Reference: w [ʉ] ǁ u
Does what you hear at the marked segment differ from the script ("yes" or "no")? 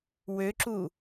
yes